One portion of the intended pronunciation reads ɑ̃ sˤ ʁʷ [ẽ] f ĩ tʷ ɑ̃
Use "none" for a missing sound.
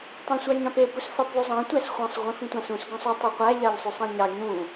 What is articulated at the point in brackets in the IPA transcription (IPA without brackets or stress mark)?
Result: ĩ